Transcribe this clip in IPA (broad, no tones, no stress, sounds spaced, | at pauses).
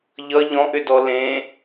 ʎ ʌ ʎ ɔ̃ ʔ ʏ d ɔ l ẽ